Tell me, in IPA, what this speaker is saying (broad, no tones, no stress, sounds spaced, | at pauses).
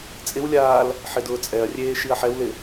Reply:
t͡sʼ ɪ w lʲ aː l | ħ ɪ d ʊː t͡sʼ ɛ ɐ̯ rʲ eː ʃ i ɐ̯ ħ ɛ w l ɪ